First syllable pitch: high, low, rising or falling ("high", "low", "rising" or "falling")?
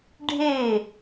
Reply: falling